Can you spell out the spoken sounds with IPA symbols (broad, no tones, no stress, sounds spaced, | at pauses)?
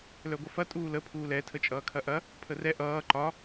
l œ ɡʷ ɐ f ɐ tʼ uː l ə pʰ uː l ɛ tʰ ə t͡ʃʼ ʌː kʰ ɐ ʔ ɐ | pʰ ə r ɛ ʔ ʌː ǃ ɒ